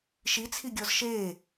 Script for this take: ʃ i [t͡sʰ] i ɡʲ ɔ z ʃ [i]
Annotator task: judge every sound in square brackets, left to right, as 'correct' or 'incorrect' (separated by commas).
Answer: correct, incorrect